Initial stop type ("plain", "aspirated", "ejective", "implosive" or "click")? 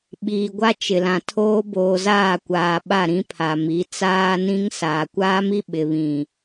implosive